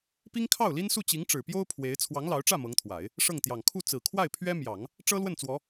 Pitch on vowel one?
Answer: high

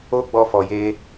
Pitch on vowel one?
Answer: high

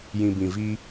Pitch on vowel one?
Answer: low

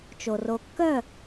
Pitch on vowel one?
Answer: low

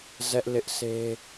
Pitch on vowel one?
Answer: high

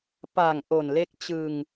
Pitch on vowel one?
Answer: low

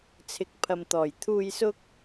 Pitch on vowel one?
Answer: rising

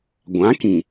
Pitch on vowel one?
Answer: rising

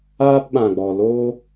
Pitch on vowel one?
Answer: high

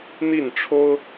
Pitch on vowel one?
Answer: falling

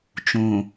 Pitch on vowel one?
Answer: low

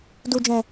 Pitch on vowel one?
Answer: low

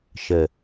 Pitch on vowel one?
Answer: low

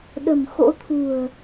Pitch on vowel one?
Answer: low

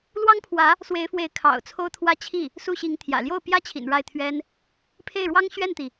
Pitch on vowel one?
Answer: high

